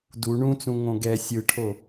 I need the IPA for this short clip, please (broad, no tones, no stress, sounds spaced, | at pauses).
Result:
d u ɳ ũ t͡s ũ ŋ õ ɡ ɛ sʲ ɯ ʈʰ o